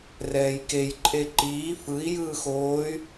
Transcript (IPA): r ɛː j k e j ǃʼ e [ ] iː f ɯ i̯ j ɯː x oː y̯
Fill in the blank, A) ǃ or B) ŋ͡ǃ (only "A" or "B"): A